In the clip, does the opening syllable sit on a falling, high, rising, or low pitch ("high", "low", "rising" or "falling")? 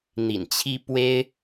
low